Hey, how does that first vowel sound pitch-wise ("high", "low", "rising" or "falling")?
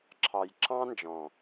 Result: low